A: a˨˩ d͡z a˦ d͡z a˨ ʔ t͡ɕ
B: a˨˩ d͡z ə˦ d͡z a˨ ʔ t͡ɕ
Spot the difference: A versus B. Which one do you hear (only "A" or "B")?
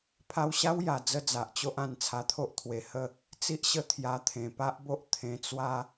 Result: B